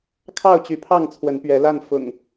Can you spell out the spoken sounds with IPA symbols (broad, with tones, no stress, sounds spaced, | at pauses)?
kʰ ɑ˥˨ ʊ̯ t͡ɕ y˨˦ pʰ ɑ˥˨ ŋ t͡sʰ w ə˨˦ n p ɥ ɛ˨˦ l a˥˨ n f ʊ̰˨˩ ŋ